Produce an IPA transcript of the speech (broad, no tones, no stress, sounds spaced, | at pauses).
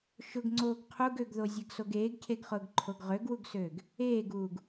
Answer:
ʃ ʊ ɡ ŋ͡ǀ oː ɡ qʰ u ɡ ø ɡ ð o zʲ ɛ ɡ s o ɡ eː ɡ cʰ e ɡ χ ʊː ɡ ǃʰ o ɡ ʁ ø ɡ w u ɡ s øː ɡ | eː ɡ uː ɡ